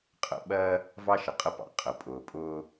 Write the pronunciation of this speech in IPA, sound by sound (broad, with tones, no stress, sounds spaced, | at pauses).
qʼ ə̰˦ ɓ ɜ˦ | v ɑ˦ ʃ ə˨ qʼ ə˦ p ɑ̰˨ qʼ ə˨ pʼ ʊː˨ pʼ ʊː˦